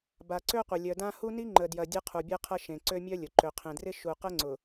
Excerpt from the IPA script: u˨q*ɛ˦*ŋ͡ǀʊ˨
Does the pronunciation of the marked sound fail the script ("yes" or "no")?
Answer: yes